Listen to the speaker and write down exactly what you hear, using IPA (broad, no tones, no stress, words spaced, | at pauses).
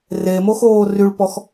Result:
remoxoː ryɭpɔx